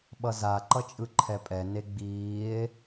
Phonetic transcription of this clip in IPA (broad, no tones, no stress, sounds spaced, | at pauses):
ɓ ʌ z a ǃ ʌ t͡ʃʼ ɯ ǃʰ ɛ pʼ ɛ n e ɡ͡b iː e̯